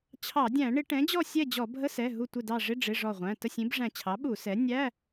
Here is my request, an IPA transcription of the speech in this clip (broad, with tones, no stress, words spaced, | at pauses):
t͡ɕʰɑ˧˩˧dʲæ̃˧˩˧ ɳɪ˧˩˧ ʈɛ̃˩˥d͡ʑɔ˥˨sʲɛ˥˨d͡ʑɔ˧˩˧ bʱə˧˥˧sɛ˩˧˩ ɦu˧˩tʷɪ˧˩dɑ˧˩ ʐɪ˧˥˧ ɖ͡ʐɪ˩˧˩ ʐɔ˧˩ʁʷæ̃˩˧˩ tə˥˨sʲĩ˩˥b ʐæ̃˧˩t͡ɕʰɑ˩˥ɓu˧˩˧ sɛ˩˥ nʲæ˧˥˧